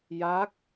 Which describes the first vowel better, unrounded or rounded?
unrounded